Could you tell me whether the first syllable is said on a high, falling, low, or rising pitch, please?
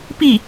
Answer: falling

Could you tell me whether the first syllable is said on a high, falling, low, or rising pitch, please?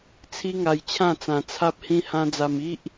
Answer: high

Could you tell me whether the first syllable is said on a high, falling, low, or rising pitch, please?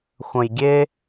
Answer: low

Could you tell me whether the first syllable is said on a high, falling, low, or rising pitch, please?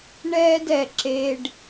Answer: high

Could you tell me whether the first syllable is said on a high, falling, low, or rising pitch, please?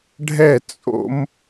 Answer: falling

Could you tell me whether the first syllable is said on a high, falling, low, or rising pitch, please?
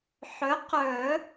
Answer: rising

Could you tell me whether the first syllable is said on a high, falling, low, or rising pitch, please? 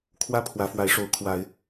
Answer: high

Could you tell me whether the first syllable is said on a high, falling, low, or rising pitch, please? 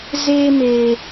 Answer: high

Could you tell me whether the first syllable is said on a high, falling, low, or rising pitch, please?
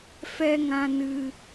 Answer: high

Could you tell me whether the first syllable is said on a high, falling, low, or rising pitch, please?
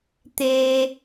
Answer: high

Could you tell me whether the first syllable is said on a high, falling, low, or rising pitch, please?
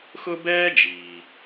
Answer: high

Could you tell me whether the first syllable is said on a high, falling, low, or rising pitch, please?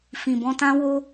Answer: low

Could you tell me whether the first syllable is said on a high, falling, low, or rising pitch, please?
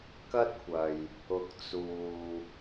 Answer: high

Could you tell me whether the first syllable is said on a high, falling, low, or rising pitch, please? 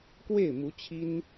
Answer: falling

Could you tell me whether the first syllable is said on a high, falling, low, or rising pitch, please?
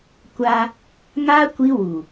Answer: high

